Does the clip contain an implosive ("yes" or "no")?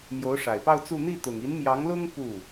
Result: no